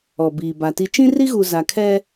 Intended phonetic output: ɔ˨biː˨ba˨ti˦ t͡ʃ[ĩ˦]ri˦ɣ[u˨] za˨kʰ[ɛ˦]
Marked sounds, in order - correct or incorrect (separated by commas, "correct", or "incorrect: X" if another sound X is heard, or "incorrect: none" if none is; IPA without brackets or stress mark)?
correct, correct, correct